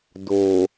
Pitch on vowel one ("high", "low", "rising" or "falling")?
low